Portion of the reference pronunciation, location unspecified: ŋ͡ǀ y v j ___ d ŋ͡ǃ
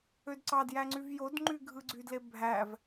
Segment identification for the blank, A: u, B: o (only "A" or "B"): B